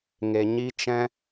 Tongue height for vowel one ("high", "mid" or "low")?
mid